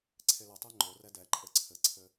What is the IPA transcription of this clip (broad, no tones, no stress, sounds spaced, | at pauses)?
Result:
ǀʰ e l ɘ tˤ e ŋ͡ǃ o r ɛ d ɛ ǃʼ ɘ ǀʰ ɘ ǀʰ ɘ